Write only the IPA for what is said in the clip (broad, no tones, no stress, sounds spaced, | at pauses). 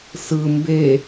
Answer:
s ɯ m b e